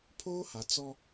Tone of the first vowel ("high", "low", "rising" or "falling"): high